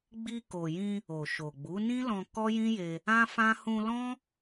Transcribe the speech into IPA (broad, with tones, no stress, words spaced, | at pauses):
ɡ͡bi˧ ko˨jĩ˧ | o˨ʃo˨ɡ͡bu˨˦ nĩ˦lɔ̃˧ kɔ˦jĩ˦je˧ | ã˦fã˦ hũ˧ lɔ̃˦